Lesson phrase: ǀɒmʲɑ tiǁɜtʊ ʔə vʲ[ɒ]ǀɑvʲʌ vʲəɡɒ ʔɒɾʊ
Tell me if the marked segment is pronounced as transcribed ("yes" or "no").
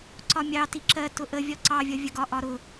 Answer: yes